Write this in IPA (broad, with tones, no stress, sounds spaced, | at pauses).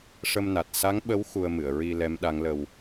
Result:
ʂ ə˧ m n a˨˩ t̚ s a˧˥ ŋ ɓ ə˧˥ w x u˧ ə̯ m ɨ˨˩˨ ə̯ ɹ i˧ l ɛ˧˥ m ɗ a˧˥ ŋ l ə˧ w